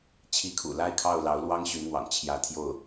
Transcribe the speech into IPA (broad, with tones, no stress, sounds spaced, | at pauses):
t͡ɕʰ i˧˥ kʰ ṵ˨˩ l a˥˧ ɪ̯ kʰ ɑ˥˩ ʊ̯ l ɑ˧˥ ʊ̯ l w ɑ˥ ŋ ɕ y˧˥ n n̪ w ɑ̰˨˩ ŋ t͡ɕʰ j ä˧˥ t̪ʰ j o˥˩ ʊ̯